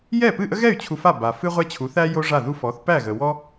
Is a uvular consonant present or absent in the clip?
present